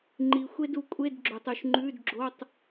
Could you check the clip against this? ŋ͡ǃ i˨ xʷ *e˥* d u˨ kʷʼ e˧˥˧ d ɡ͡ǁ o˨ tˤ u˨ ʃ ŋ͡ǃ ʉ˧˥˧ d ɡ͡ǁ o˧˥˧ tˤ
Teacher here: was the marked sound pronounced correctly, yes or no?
yes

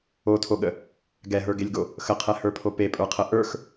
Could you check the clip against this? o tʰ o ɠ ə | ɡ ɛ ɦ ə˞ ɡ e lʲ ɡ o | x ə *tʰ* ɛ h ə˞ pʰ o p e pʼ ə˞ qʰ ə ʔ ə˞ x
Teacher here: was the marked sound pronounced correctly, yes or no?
no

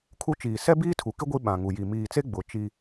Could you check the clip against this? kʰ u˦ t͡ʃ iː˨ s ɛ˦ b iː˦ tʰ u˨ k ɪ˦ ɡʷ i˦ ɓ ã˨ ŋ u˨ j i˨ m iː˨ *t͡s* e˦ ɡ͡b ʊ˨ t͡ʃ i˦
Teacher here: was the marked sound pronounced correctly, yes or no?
yes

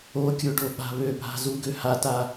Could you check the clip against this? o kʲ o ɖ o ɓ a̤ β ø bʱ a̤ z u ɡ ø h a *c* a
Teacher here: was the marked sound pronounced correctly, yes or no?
no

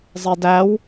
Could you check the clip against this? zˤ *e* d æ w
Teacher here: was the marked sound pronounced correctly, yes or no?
yes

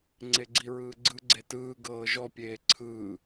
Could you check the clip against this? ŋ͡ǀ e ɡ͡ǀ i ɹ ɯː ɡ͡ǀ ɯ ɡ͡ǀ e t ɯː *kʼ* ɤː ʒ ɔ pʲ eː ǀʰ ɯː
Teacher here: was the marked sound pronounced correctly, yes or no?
no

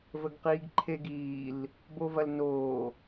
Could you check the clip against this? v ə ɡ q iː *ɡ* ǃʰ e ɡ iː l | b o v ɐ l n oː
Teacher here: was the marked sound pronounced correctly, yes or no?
yes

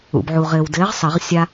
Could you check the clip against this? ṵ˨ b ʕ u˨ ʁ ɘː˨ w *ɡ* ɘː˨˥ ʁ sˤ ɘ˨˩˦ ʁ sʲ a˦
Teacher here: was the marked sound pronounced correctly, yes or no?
no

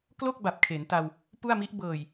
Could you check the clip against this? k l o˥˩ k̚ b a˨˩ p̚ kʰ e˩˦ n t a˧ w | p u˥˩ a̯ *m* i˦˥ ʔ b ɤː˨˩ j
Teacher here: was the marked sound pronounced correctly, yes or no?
yes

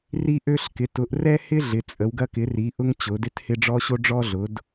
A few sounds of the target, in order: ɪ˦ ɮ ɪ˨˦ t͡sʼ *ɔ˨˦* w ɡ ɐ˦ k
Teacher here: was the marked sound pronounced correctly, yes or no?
no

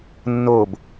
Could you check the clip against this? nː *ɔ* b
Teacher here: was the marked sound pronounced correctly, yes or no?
no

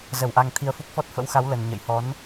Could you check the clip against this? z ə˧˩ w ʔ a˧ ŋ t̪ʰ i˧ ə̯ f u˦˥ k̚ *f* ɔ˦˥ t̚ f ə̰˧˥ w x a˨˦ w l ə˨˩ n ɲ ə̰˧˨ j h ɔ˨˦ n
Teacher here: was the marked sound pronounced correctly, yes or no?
yes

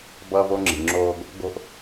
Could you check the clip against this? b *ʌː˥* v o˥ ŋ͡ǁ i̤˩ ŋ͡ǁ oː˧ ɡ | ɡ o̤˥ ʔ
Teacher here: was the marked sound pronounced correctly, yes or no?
yes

